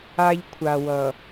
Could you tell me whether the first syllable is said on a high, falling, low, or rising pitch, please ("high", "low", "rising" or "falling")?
high